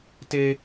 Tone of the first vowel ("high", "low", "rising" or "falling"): high